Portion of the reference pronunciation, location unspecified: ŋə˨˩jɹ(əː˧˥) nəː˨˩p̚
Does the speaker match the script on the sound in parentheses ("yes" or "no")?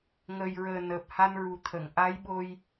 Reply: no